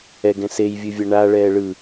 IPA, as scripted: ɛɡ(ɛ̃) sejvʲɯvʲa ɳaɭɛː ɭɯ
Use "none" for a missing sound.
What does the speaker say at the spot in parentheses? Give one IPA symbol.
ɛ̃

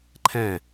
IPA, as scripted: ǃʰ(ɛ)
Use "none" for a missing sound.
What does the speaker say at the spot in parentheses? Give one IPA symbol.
ɛ̃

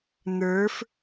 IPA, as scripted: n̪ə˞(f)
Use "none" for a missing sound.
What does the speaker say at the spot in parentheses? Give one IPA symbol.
f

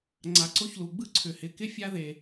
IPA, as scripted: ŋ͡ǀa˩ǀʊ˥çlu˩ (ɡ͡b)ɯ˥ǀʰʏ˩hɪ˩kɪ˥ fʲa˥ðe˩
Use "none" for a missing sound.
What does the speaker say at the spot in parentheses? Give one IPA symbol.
ɡ͡b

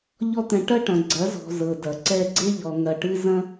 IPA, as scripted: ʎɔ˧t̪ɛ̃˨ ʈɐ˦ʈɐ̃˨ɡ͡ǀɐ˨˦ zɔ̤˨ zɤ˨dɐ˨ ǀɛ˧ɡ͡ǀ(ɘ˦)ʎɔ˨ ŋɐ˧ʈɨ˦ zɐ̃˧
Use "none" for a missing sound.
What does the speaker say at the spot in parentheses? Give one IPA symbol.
e˦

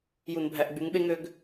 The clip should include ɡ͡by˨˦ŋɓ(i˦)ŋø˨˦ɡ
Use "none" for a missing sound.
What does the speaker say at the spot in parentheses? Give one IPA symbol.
e˦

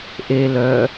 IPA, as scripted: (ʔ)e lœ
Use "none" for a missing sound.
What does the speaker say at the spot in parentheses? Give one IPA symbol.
ʔ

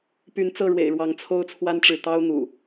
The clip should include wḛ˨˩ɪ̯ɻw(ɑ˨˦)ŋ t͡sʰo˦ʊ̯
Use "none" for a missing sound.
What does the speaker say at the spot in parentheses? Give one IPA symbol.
ɑ˨˦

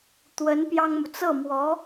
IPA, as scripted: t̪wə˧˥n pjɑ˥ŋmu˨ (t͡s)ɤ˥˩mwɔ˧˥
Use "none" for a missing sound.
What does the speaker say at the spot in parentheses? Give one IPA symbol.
t͡s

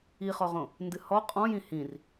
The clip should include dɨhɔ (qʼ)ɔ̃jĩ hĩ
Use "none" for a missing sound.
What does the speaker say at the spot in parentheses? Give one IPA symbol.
qʼ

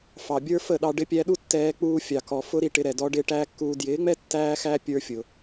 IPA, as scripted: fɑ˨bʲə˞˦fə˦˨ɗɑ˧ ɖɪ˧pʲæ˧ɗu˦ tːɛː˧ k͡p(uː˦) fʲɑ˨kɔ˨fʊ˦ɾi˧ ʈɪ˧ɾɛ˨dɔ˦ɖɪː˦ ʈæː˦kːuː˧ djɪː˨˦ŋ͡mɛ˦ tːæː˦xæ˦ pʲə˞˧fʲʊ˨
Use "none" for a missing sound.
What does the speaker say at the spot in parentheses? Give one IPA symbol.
uː˦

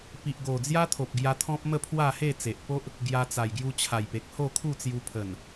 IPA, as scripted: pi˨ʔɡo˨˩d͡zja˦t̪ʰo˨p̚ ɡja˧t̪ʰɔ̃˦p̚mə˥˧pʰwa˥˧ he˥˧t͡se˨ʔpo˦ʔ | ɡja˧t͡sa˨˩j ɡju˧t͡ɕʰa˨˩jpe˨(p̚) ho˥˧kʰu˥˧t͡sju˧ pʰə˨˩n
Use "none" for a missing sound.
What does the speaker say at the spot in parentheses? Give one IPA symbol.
k̚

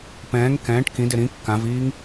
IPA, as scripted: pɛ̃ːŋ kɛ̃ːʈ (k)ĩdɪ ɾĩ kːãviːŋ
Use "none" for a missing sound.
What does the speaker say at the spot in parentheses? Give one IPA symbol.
k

